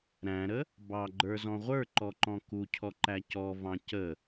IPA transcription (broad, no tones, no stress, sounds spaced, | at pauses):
ɾ æ̃ ɾ ə | b ɑ ɡ͡ǃ ə˞ z ɔ̃ ʁʷ ə˞ ǃ ɔ ǃ ɔ̃ k u cʰ ɔ ǃ æ c ɔ v ɑ̃ c ə